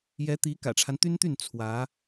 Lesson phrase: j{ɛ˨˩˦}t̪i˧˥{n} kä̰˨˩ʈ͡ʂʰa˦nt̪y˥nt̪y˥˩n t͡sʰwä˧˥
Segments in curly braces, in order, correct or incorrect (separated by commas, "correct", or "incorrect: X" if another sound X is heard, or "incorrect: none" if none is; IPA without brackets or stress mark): incorrect: ɛ˧˥, incorrect: none